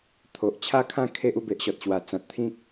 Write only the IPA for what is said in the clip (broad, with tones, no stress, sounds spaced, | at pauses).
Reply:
t̪ʰ o˨ ʔ t͡ɕʰ a˦ kʰ ã˥˧ kʰ e˦ ʔ u˥˧ b e˨ ʔ ɕ ɔ˨ t̚ ɕ w a˨˩ t͡s ã˨ t̚ t̪ʰ ĩ˦ k̚